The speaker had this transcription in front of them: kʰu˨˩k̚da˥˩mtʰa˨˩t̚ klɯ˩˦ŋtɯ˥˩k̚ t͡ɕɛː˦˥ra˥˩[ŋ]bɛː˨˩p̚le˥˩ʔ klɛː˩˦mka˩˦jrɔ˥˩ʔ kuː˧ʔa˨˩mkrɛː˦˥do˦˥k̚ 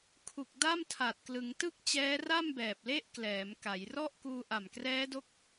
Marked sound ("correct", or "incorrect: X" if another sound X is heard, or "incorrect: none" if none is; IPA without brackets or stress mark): incorrect: m